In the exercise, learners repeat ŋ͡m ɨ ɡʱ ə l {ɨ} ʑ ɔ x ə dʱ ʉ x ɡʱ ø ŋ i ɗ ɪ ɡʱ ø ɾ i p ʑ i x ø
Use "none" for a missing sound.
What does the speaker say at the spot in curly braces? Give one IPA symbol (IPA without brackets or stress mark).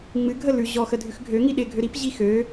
ʉ